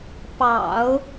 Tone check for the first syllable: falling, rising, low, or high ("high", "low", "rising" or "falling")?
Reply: low